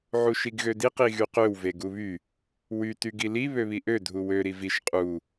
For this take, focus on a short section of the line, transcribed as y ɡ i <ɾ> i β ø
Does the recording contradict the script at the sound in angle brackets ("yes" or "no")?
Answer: yes